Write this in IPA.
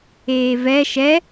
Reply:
eːvɛ ʃɛ

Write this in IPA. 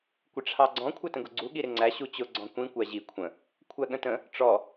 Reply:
kʷɪʈ͡ʂʰɑɡ͡ǀɔ̃ kʷʰætə̃ɡʊɡ͡ǀu ɠiɾɪŋ͡ǀæ ɕut͡ɕʊ ɡ͡ǀɔ̃kʷĩ kʷæʑi kʷʰə̃ | kʷʰæɠə̃tə̃ | ʈ͡ʂɔ

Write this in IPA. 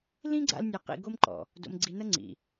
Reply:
lĩ˦ɡ͡ǀa̰˧l nʲɐ˧ qḭ˧ɡo˦mǃɔ̰˨ | do̰˧mɡ͡ǀi˧nɐ˦ŋ͡ǀḭ˨

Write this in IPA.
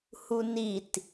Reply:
hunit

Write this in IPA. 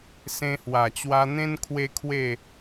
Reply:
sẽ˧hwa˨˩t͡ɕwa˧ n̪ẽ˦n kʰwe˦kʰwe˥˧

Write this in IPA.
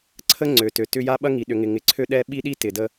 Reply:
ǀʰə˦ŋ͡ǀø˨tø˨ tʏ˦ja˦ ɓɐ˦ŋi˨ɗʏ˨ŋɪ˨ ŋɪ˨ǀʰø˦ɗɛ˦ ɓi˦ɗi˦ tɪ˨də˦

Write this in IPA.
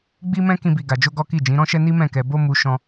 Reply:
ɡ͡bi˦mɛ̃˦ kĩ˦bi˧ɡa˧d͡ʒo˦ ɡɔ˦ki˦˨ d͡ʒĩ˨˦ɾɔ̃˦ʃɛ˦ ni˦mɛ̃˦˨kɛ˧ bo˦ mu˦ ʃɔ̃˦

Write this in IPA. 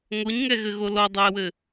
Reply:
ŋoɲŋɛɣɘɣo lɔdˤoə̯wɘ

